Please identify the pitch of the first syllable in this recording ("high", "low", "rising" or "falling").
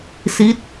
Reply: falling